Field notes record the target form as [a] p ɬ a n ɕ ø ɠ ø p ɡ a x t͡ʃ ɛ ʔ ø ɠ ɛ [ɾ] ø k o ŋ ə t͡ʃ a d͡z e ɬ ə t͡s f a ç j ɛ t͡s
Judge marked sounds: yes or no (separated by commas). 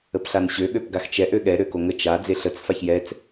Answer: no, yes